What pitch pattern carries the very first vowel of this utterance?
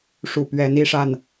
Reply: low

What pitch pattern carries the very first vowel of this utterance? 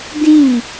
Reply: falling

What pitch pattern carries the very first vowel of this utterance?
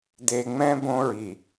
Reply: low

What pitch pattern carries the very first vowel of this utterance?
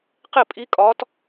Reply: falling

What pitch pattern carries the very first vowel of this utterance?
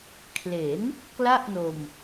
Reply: rising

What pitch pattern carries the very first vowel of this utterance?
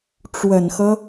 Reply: low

